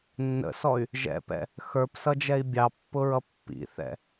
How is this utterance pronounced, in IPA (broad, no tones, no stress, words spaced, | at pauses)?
nːə̰sɔy̯ | ʒɛ̰pɛ̰ | xə˞psʌd͡ʒɛi̯ bʲɑpːʊɹʌ pːḭθɛ̰